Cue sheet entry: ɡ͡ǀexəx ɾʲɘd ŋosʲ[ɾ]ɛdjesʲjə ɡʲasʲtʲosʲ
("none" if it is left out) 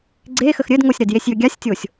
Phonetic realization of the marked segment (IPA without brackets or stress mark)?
ɾ